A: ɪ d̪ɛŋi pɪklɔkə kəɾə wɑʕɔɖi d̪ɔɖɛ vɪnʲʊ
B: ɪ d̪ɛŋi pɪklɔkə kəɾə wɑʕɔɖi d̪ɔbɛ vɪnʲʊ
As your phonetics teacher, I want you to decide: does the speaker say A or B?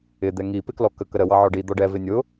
A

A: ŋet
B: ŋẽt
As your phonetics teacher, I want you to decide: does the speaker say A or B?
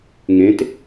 B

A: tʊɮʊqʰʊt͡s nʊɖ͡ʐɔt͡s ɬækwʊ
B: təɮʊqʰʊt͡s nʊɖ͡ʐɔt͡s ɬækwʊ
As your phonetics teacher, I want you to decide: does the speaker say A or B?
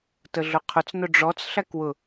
B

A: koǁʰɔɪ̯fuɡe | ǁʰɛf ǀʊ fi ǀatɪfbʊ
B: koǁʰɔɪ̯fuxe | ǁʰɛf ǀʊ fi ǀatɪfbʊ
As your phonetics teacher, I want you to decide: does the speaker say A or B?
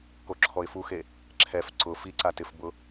B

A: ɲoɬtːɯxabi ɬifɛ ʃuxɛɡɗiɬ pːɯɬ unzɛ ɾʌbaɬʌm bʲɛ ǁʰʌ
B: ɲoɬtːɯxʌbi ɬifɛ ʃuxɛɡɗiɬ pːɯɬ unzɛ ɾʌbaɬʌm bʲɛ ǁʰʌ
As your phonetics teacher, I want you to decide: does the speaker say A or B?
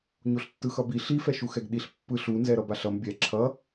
B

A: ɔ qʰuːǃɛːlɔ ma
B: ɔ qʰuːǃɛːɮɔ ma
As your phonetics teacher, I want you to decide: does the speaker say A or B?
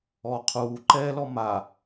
A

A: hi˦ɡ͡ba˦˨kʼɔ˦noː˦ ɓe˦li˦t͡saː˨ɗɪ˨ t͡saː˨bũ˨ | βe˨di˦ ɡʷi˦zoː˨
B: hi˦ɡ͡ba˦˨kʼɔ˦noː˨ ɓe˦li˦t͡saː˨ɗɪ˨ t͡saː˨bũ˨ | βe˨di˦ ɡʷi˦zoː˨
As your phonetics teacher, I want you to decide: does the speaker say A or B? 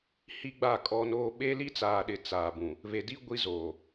A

